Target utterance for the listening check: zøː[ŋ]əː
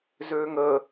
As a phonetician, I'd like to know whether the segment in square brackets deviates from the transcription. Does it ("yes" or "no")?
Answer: no